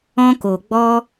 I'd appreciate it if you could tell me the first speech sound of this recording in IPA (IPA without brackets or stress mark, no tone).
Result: ɔ̃